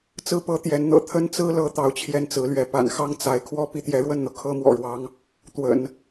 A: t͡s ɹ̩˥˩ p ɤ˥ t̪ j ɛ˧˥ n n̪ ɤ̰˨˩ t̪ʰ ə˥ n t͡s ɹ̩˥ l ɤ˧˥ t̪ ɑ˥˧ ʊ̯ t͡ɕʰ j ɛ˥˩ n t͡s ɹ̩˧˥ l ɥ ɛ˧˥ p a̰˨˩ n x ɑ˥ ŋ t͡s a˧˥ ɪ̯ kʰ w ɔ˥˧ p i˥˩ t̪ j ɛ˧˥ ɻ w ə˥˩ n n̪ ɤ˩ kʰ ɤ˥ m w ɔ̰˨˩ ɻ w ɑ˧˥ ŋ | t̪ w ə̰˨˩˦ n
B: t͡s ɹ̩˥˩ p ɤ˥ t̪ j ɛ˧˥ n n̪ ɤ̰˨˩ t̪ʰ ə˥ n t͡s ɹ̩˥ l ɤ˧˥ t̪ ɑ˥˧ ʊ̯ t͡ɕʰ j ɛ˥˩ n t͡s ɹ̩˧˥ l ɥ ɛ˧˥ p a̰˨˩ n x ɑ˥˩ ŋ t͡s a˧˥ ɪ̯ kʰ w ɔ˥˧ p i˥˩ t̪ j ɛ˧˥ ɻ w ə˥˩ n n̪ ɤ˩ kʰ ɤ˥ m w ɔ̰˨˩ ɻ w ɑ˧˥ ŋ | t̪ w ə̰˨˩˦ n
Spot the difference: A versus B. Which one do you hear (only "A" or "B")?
B